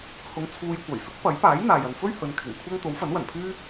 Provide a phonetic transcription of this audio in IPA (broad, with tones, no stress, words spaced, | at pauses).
hʊ˧ŋt͡sʰuː˧jkʷɐ˨˩j sʊ˥k̚pɐ˨˥j paː˨˥jn̪aː˨j ɐ˨nfɵ˥ɥ hɵ˨˧nkʰɪ˨˩ŋkʷʰɐ˥ŋ t̪o˨˥wfɐ˨˥nwɐ˨˩npʰyː˥